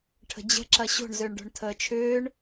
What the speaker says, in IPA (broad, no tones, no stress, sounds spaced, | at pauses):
ʈʰ ə̤ d͡ʑ ə̤ ǁ ɐ ɕ o̤ ɳ z ø ɳ ɖ o̤ ɳ tʰ əː t͡ʃʰ ʏː ɳ